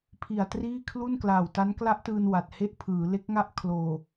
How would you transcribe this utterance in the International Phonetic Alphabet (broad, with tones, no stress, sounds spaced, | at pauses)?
pʰ i˨˩ a̯ t r iː˥˩ kʰ l u˥˩ n k l aː˨˩ w t a˦˥ n k l a˦˥ ʔ t ɯː˧ n w a˨˩ t̚ h e˥˩ ʔ pʰ ɯː˩˦ l e˦˥ k̚ ŋ a˥˩ ʔ kʰ l oː˨˩